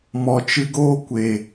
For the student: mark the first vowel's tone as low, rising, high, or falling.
low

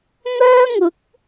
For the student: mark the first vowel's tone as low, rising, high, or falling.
high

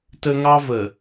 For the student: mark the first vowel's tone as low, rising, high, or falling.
high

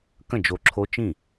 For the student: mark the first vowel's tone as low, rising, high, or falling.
falling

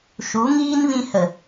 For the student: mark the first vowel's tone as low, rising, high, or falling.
rising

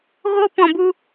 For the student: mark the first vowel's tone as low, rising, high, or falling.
high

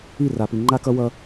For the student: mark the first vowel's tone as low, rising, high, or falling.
falling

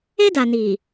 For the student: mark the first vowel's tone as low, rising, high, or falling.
high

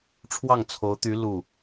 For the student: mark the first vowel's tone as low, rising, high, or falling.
falling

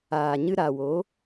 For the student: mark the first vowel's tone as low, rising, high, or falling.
low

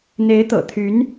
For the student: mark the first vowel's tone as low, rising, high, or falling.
rising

